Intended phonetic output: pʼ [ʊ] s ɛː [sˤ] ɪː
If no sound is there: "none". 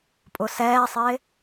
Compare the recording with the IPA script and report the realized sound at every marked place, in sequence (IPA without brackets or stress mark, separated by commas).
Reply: ʊ, sˤ